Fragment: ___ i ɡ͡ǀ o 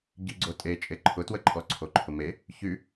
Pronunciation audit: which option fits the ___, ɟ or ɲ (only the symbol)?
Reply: ɟ